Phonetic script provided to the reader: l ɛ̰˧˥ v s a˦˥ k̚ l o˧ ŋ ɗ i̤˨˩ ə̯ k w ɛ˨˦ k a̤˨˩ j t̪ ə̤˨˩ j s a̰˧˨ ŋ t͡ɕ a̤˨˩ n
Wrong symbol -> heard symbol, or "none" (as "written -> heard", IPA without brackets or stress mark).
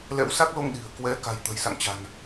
v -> w